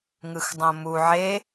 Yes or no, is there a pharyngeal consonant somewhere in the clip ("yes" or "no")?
yes